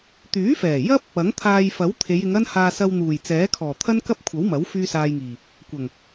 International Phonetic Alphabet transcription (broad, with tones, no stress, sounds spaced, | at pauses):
t̪ yː˨˥ f ɛː˨˩ j ɐ˥ p̚ | ɐ˨˥ ŋ t̪ʰ aː˧ j f ɐ˨˥ w t̪ʰ e˨˧ j ɪ˨˧ ŋ ɐ˥ n h aː˧ s ɐ˧ w n̪ uː˨˩ j t͡s ɛː˨˥ kʰ ɔː˨˩ t̪ʰ ɐ˥ n k ɐ˥ p̚ kʷʰ ɐ˨˥ w m ɐ˨˥ w f yː˥ s aː˧ j ŋ iː˨˩ | kʷ ɐ˨˩ ŋ